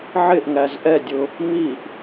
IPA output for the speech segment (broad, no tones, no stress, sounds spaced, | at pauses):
ʕ ɪ ʔ ŋ æ z ʔ ɛ dʲ ʊ | m i ʔ